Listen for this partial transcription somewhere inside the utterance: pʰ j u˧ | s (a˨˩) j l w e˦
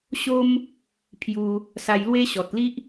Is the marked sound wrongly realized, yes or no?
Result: yes